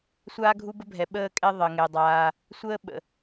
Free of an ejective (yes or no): no